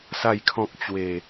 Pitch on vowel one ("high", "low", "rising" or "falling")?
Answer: falling